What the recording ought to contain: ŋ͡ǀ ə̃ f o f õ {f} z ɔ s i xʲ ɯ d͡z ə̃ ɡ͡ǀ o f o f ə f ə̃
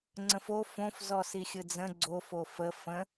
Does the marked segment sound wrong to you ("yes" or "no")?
no